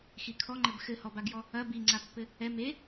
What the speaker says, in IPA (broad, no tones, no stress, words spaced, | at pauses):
xikʰɔŋ͡ǃɘb xɘhɔbaɡjɔ | ɐ biŋ͡ǀapːɘ | ɛ me